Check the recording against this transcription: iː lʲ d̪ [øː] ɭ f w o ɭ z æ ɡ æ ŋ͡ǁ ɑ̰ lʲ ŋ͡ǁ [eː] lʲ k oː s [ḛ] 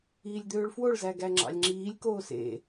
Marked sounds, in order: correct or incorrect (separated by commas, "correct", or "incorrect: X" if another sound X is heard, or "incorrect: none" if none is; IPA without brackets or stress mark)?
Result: correct, incorrect: iː, correct